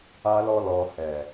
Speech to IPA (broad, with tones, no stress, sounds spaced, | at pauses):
a˧ l ɔ˦ l ɔ˧ h ɛ˨